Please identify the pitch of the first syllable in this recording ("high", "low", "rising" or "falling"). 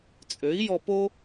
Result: rising